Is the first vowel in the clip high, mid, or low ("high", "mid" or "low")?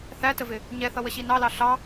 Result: low